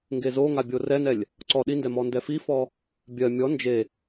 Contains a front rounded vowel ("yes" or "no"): no